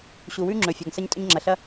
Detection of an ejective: present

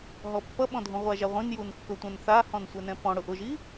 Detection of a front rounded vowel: absent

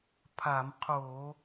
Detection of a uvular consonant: present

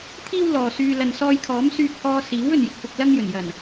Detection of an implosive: absent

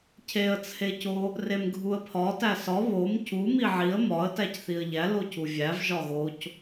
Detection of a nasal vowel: absent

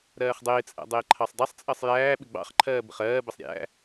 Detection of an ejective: present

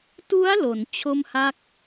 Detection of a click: absent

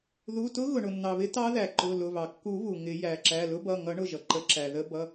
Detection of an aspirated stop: absent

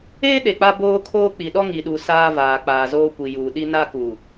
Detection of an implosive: present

